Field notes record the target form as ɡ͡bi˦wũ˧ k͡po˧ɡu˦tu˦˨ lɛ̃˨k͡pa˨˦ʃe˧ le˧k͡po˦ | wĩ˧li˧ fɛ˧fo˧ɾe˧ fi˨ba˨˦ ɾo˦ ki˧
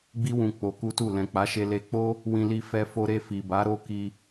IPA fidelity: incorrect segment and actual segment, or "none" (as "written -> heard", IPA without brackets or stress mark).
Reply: ɡ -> k